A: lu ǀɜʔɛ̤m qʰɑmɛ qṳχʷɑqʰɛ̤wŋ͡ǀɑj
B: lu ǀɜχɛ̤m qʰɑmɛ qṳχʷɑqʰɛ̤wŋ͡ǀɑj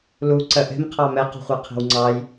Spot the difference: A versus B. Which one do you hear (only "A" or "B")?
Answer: A